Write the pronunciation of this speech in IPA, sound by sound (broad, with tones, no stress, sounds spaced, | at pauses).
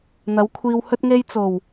n̪ ɐ˨˥ w kʷʰ iː˧ w h ɵ˧ t̚ ŋ e˧ j t͡s o˨˩ w